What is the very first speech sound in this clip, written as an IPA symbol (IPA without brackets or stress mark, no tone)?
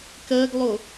k